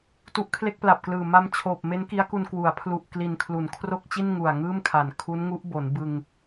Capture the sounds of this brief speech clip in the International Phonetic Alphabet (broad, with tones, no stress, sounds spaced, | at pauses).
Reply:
t u˦˥ ʔ kʰ l e˥˩ k̚ p l a˨˩ p̚ k l ɯː˨˩ m a˧ m t͡ɕʰ oː˨˩ p̚ m e˦˥ n k i˦˥ a̯ k u˧ n k w u˩˦ a̯ pʰ l u˨˩ ʔ k l i˨˩ n kʰ l u˩˦ n kʰ r o˥˩ k̚ t͡ɕ i˥˩ n ŋ u˨˩ a̯ ŋ ɯː˥˩ m kʰ a˨˩ n kʰ u˦˥ n ŋ u˦˥ ʔ b o˩˦ n b ɯ˧ ŋ